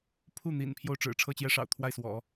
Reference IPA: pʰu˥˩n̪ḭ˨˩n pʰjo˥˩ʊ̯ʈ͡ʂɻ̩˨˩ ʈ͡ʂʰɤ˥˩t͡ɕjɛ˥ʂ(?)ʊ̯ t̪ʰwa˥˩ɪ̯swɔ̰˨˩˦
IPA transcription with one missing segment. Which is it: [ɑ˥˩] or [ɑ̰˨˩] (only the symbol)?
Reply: ɑ̰˨˩